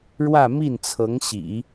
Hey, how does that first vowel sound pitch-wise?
falling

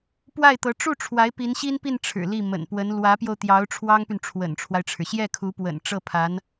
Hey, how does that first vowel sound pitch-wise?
falling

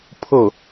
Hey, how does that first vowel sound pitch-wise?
falling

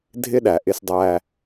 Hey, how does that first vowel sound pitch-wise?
high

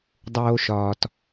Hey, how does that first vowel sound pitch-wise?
high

